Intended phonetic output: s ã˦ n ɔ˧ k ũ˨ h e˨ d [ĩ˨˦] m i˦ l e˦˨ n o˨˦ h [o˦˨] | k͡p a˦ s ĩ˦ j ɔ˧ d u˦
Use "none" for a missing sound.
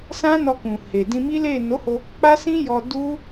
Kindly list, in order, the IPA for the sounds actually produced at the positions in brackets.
ĩ˧, o˧

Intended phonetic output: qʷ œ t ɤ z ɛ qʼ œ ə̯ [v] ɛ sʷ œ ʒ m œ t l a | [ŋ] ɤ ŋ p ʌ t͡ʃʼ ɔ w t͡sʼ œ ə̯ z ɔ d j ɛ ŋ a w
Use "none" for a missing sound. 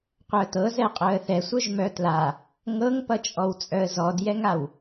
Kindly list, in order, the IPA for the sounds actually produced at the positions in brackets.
θ, ŋ

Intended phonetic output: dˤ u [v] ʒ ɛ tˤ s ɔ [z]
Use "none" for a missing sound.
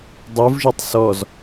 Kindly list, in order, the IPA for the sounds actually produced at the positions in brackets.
v, z

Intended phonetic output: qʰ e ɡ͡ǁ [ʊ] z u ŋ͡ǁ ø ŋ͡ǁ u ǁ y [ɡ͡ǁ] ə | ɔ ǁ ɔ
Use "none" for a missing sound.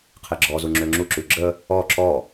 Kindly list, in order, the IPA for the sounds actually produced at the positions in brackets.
ɔ, ɡ͡ǁ

